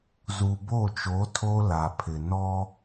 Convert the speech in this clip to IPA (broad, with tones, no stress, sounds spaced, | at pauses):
z u˨ b o˦˨ t͡ʃ o˨˦ tʰ o˦ l a˨ pʰ ɪ˨ n ɔ˦